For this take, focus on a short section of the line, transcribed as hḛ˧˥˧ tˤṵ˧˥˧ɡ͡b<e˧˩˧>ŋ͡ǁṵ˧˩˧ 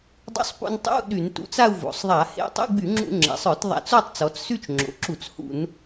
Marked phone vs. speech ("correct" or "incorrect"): incorrect